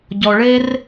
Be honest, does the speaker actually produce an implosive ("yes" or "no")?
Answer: no